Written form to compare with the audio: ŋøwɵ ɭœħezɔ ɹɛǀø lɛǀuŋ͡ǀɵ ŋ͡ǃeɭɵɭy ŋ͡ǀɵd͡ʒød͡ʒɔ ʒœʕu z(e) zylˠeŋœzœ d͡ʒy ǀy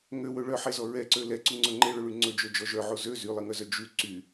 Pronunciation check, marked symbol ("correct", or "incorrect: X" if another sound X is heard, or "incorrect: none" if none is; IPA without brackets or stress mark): incorrect: ø